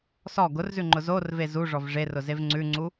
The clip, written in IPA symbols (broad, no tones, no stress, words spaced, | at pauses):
sɔ ɡʊrzʉŋ͡ǃʊ zorve zuʐɔv ʐerʊzev ŋ͡ǀʉŋ͡ǀu